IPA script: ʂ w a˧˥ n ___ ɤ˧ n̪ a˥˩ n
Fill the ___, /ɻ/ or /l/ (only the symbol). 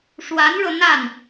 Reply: ɻ